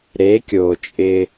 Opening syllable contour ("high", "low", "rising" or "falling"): rising